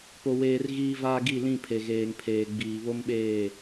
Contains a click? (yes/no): no